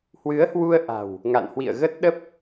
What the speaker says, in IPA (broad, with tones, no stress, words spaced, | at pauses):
hwɨ˨˦ə̯hwu˧ə̯ʔa̤˨˩w | ŋa̰˧˨nhwḭ˧˨ə̯ɣə˦˥t̚ɗə˦˥p̚